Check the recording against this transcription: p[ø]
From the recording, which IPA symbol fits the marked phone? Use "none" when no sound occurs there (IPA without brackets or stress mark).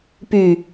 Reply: y